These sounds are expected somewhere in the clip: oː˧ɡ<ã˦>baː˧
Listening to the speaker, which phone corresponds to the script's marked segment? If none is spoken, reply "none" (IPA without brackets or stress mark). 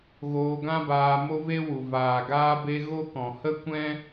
ã˦